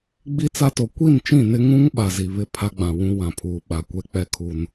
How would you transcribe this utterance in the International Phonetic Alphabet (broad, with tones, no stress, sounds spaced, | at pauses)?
ɡ͡b i˦ t͡s a˦ t o˨ kʷ i˦˨ n t͡ʃ ĩ˦˨ n ɪ˦ ŋ ũ˦ ŋ ɓ a˨ z i˨ β ɪ˦˨ pʰ a˦ ɡ͡b ã˨ w ũ˦ w ã˨ pʰ uː˨ ɓ a˨ kʷ ɛ˦ k͡p ɛ˦ kʰ u˦ n